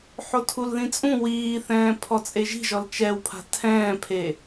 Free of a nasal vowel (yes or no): no